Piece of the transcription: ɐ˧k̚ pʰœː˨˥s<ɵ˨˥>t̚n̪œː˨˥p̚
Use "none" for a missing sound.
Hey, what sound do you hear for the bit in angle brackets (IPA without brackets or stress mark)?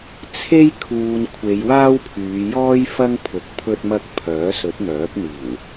ɵ˨˥